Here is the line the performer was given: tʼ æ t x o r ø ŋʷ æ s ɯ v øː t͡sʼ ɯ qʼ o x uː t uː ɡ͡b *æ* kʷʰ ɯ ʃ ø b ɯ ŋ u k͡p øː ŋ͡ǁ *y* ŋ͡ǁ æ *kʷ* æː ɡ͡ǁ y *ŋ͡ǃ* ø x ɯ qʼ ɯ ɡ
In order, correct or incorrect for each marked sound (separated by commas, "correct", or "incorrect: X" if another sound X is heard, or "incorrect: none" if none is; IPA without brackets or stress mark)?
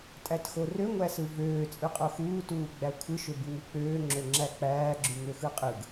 correct, incorrect: ø, incorrect: k͡p, incorrect: ŋ